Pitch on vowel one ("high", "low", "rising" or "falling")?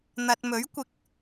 low